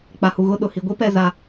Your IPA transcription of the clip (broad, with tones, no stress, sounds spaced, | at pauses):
k͡p a˨ h u˨ ɣ ʊ˦˨ ɗ ʊ˨ h i˨ ɡʷ i˦ p ɛ˦˨ z a˦